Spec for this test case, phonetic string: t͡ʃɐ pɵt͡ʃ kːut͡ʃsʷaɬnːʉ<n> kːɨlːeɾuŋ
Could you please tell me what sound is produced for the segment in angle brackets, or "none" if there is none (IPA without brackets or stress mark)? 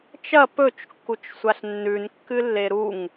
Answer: n